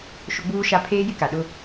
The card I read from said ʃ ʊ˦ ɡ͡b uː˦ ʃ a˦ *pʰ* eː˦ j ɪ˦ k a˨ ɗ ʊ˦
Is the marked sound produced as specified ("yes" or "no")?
yes